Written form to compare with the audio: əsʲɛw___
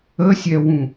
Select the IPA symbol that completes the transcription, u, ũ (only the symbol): ũ